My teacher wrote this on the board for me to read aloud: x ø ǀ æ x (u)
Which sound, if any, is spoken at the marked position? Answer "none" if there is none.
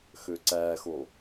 o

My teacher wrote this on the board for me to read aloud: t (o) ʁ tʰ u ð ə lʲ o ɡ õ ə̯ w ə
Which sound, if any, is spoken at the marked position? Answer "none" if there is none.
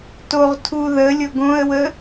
o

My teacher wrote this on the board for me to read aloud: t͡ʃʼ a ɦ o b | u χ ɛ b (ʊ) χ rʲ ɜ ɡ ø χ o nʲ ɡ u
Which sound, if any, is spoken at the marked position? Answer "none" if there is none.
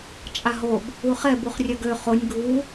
u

